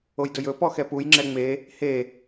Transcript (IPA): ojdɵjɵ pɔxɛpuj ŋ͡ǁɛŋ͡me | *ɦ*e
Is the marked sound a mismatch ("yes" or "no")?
yes